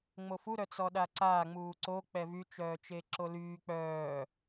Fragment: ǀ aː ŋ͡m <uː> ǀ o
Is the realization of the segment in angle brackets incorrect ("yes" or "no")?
no